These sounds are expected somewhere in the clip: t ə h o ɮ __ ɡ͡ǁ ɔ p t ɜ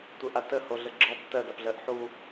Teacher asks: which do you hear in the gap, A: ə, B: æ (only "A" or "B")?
A